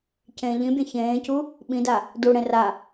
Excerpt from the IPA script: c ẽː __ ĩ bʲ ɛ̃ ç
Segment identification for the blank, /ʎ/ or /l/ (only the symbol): ʎ